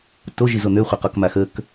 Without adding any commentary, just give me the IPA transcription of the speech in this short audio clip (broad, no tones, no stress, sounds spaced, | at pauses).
t o ʒ i z o n̪ ø χʷ e q ɔ k m a x ə k